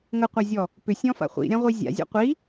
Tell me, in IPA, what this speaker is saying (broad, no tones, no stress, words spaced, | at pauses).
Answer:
ŋəqʷazʲɔ | pʏsʲɔ̃fa̰ χʷḭɾʲãʁʷi zʲa̰zʲɔ̰ qʷi